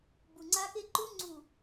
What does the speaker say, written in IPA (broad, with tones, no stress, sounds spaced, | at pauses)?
b u˨ ŋ͡ǀ a˦ k e˦ ǃ u˦ ŋ͡ǀ u˨